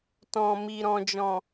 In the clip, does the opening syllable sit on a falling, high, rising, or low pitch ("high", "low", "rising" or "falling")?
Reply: low